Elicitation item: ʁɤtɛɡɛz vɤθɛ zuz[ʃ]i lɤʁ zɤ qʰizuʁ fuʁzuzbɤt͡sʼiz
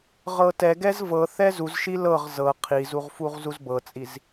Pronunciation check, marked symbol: correct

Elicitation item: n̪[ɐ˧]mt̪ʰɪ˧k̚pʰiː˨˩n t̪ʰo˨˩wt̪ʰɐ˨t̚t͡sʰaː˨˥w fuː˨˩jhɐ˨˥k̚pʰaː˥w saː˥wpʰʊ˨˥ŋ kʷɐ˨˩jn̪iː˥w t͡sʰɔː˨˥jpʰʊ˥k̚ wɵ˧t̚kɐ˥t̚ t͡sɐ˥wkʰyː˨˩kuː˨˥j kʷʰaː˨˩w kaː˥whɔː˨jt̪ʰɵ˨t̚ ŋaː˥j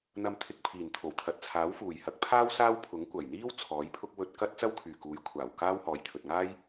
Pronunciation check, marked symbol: correct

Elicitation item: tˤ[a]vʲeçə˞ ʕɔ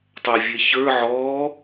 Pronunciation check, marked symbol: correct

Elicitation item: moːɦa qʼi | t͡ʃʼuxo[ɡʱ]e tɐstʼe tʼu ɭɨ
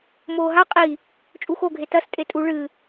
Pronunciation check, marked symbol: correct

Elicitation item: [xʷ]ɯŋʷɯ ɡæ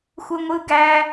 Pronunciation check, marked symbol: correct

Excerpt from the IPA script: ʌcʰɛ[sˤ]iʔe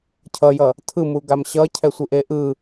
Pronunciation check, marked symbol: incorrect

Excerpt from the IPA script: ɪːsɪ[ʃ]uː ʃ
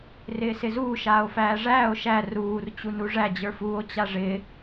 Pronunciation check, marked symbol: incorrect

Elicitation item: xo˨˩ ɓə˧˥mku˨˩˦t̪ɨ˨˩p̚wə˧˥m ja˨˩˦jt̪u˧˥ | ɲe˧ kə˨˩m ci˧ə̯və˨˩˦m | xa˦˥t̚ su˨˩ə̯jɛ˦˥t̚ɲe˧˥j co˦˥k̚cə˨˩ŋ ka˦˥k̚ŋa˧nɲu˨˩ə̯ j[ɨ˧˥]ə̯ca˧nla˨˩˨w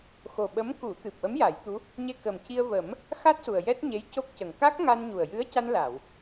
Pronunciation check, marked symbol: correct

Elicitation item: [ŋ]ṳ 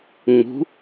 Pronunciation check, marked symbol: incorrect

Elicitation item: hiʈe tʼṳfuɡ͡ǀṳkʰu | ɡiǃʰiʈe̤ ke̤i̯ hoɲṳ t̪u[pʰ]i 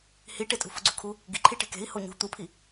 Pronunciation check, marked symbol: correct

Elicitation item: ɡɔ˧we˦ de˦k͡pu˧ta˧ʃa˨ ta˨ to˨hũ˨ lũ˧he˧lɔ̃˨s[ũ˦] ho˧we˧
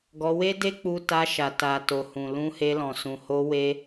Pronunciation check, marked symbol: incorrect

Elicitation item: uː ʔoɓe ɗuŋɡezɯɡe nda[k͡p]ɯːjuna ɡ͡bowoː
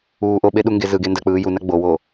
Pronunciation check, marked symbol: correct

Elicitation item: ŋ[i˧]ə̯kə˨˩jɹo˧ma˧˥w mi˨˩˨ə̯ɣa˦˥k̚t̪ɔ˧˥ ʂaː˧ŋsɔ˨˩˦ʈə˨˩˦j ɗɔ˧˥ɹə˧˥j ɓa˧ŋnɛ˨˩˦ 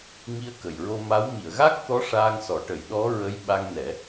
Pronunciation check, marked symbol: correct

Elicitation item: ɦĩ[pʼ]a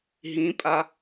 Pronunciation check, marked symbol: correct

